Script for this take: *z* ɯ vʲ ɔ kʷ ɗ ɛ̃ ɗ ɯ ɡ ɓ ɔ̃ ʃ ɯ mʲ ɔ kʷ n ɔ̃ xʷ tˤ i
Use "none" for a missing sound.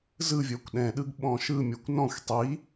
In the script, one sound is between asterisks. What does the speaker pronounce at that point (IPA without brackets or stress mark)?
z